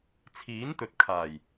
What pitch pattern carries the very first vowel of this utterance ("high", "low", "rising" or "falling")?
rising